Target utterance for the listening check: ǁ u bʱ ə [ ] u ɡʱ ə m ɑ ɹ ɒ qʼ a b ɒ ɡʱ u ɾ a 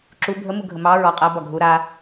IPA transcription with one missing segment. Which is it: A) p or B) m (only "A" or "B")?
B